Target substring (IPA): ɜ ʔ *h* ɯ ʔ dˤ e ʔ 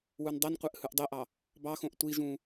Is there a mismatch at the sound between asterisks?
no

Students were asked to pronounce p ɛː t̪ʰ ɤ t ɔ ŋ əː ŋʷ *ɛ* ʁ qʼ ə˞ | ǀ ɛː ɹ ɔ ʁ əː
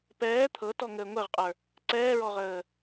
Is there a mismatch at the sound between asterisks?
no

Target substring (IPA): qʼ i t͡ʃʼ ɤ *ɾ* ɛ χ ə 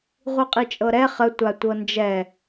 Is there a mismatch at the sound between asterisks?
no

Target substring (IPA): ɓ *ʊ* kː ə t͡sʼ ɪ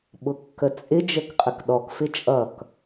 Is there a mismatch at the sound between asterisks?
no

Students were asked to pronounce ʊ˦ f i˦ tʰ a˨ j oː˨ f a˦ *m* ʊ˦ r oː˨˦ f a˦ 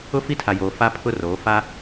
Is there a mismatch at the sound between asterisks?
yes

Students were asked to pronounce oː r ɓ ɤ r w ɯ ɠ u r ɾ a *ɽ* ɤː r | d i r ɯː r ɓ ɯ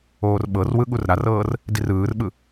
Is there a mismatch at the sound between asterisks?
yes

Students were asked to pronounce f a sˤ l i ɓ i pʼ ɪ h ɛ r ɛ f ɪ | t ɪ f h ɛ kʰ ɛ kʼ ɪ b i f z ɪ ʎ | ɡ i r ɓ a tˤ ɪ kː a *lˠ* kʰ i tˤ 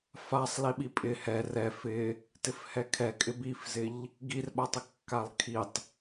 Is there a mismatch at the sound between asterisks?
no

